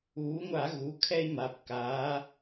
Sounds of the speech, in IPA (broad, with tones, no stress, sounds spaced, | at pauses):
uː˩˧ ŋʷ a˧˩˧ ɣ u˩˧˩ kʰ ɛ˦ i̯ m a˩˧˩ p k aː˩˧